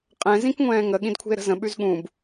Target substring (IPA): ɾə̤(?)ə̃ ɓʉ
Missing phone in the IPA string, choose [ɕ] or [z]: z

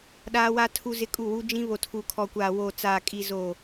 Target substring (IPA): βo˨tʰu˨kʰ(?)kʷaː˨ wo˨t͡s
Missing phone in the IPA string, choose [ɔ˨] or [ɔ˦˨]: ɔ˨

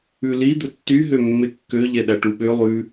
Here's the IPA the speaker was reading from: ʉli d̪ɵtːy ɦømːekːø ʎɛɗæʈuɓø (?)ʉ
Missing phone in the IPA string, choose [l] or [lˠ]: lˠ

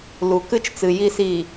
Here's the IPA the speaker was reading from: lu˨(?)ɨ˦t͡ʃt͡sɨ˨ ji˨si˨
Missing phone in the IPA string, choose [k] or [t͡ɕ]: k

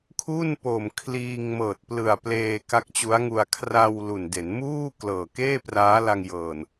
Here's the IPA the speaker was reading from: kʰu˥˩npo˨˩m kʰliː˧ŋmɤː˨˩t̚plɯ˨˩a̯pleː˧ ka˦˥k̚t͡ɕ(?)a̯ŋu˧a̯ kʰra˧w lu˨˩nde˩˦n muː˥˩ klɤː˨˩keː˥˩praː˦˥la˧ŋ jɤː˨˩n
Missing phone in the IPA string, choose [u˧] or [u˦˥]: u˦˥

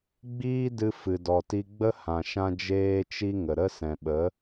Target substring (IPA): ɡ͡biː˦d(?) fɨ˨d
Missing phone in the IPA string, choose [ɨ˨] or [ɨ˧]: ɨ˧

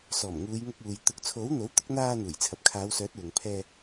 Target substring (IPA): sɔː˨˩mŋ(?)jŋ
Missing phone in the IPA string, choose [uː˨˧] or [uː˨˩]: uː˨˧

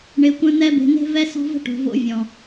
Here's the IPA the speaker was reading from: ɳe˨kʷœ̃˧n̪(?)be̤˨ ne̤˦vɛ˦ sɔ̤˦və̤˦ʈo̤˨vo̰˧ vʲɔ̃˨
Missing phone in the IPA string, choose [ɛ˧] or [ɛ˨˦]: ɛ˧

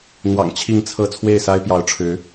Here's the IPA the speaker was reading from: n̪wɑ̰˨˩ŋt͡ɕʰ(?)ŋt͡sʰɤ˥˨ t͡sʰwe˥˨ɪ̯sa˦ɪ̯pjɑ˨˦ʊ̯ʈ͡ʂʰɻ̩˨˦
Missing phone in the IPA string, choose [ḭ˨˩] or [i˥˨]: i˥˨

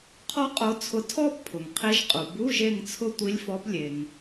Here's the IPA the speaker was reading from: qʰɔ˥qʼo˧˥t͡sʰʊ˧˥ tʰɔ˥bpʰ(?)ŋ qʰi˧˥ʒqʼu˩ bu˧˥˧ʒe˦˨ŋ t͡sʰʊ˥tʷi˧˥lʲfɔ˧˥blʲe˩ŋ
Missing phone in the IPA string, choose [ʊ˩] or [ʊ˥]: ʊ˩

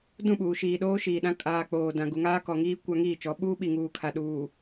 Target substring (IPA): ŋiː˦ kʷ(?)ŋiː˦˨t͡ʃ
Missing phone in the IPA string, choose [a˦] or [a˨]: a˦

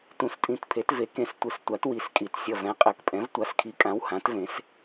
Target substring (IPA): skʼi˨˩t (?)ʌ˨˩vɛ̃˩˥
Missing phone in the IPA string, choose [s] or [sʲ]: sʲ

